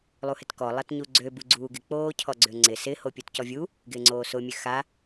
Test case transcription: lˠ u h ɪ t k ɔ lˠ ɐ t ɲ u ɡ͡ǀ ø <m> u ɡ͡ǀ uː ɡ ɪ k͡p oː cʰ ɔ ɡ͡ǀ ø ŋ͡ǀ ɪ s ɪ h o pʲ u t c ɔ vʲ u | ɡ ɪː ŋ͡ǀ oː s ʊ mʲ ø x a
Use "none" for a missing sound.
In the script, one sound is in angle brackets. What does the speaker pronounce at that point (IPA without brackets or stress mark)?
b